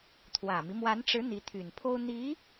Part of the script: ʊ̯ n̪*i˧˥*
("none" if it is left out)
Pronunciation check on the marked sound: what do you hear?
i˧˥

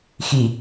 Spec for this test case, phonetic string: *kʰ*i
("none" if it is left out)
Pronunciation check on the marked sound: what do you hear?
x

